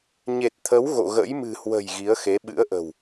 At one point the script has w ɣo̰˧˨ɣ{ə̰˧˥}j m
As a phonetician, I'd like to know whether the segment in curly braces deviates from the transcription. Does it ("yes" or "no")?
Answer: no